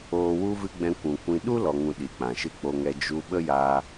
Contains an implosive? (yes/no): yes